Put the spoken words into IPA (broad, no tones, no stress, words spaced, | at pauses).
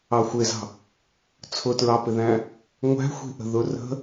ɑxʷɪzɑ̤ | t͡sʰʊtɹɑpɪðæ̃ | ŋʷæ̤xʷi̤ʔə̤ ðʊ rə̤